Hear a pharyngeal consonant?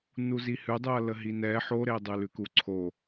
yes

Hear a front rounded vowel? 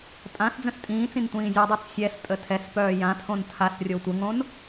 yes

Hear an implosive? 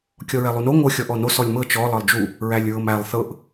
no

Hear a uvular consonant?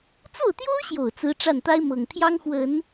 no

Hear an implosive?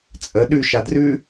yes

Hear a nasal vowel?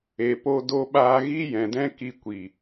yes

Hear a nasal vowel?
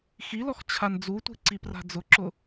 no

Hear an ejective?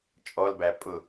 yes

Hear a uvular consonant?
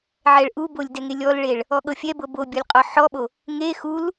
yes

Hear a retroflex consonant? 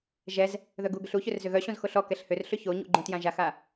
no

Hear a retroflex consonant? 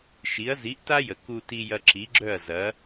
no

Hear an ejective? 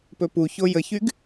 no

